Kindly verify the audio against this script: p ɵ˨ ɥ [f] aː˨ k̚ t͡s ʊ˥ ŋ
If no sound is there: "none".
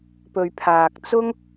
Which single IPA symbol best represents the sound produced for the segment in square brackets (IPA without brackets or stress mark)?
pʰ